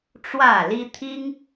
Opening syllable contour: falling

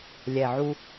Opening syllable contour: low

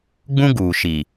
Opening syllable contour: high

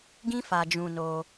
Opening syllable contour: high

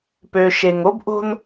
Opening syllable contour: low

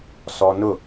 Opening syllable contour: high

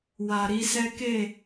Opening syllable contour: low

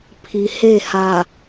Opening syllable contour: low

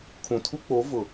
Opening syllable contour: low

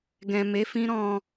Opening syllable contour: low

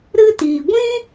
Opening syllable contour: high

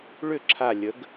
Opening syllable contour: falling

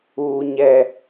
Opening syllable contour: high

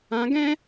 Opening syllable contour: rising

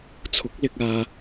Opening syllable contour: rising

